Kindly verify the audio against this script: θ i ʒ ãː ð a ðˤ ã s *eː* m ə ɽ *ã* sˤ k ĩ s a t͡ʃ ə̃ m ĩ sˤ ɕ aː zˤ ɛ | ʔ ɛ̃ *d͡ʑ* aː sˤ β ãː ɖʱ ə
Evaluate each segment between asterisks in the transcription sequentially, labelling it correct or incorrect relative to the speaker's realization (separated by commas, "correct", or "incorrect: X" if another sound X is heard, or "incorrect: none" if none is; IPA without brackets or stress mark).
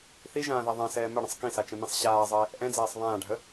incorrect: ɛː, incorrect: ə̃, incorrect: d͡z